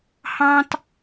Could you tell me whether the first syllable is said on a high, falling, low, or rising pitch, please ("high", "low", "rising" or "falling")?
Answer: high